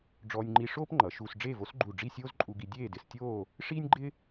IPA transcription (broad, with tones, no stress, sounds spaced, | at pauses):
ɖ͡ʐ ɔː˧ nʲ ŋ͡ǃ i˧ ʂ oː˥ p ŋ͡ǃ ʌ˩˧ ʃ uː˧ s ɖ͡ʐ eː˥˧ v o˥ s ɡ͡ǃ u˧˩ ɖ͡ʐ i˥˧ sʲ oː˥ z ǃʼ u˧ ɡ i˧ dʲ eː˥˧ d ɪ˧ s tʲ oː˥˧ | ʂ iː˥ nʲ ɡ͡ǃ ɪ˥